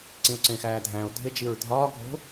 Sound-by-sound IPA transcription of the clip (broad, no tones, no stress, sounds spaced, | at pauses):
ǀ ĩ o̯ ǀ ẽː x æː dʱ æ̃ː o̯ dʱ e d͡ʒ i ɹ dʱ ɒː ɡʱ o̤